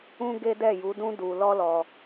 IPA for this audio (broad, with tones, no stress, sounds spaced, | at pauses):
ũ˦ ɡ e˦ d ɛ˦˨ j u˨˦ d ũ˦ d u˧ l ɔ˦ l ɔ˧